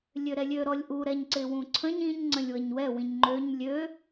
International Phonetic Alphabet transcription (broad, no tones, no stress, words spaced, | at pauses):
lʲøɾɛlʲø ɾɔlʲʔu ɾɛɲǀɪwũǀʰə̃ɲ ĩɲ ŋ͡ǀə̃lʲwəɲwɛ wĩɲŋ͡ǃøɲ lʲø